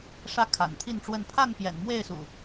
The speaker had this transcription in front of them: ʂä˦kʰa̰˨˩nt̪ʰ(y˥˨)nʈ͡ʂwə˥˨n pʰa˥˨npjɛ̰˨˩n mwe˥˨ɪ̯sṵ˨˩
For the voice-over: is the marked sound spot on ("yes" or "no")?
no